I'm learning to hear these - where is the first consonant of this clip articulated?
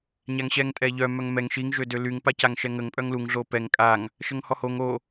palate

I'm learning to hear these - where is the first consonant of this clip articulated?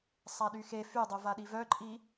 tongue tip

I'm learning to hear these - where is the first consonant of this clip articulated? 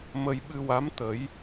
lips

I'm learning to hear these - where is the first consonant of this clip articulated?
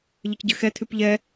palate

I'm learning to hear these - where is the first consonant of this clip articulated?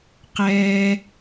uvula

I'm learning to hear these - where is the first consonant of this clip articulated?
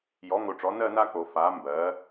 palate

